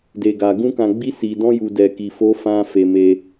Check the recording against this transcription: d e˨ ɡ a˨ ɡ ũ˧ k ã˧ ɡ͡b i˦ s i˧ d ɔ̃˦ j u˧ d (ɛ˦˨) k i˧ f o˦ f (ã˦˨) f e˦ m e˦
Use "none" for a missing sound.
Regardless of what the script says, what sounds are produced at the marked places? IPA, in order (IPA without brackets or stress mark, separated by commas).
ɛ˧, ã˦